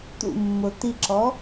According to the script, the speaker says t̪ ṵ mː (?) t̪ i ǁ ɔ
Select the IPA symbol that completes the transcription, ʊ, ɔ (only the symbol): ʊ